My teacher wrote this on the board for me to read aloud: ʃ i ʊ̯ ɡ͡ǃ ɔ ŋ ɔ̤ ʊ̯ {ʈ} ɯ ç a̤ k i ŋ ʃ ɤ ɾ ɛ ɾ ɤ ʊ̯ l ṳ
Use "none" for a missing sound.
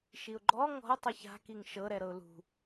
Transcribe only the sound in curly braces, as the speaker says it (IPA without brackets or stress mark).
tˤ